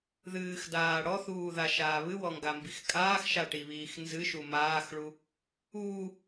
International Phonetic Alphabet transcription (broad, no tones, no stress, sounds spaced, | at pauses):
ð ɨː x d aː ɽ ɔ θ uː ð a ʃ aː β ɨ w ɔ ŋ ɡ a m b i x kʼ aː x ʃ a ʈ i β iː x n z ɨ ʃ u m aː x ɭ u | uː